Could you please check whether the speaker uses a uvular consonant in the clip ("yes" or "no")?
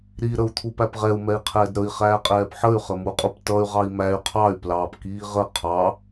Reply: yes